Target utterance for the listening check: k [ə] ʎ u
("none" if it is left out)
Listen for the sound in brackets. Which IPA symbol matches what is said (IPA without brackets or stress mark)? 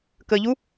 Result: ə